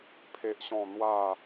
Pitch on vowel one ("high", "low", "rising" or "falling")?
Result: high